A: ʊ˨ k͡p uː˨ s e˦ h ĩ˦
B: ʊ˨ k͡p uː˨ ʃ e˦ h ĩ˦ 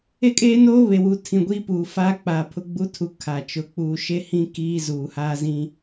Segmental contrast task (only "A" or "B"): B